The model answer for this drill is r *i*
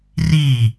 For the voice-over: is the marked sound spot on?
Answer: yes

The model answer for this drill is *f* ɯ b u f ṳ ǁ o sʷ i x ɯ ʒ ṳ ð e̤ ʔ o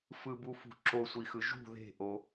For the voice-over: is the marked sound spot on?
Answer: yes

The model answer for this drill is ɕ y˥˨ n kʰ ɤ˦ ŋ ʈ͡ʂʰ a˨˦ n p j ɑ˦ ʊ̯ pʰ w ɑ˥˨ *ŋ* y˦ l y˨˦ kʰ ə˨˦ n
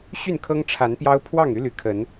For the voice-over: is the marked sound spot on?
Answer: yes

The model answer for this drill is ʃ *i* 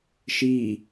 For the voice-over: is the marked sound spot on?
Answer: no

